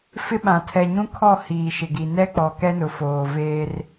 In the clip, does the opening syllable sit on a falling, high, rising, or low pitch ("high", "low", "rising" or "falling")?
high